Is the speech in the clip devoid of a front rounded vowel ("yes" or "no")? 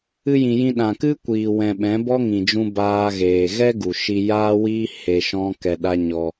yes